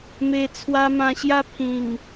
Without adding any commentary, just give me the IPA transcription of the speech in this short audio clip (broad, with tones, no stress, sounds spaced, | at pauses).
m e˨˩ t͡sʰ w a˧ m ã˧ ɕ j a˥˧ pʰ ĩ˨˩ ŋ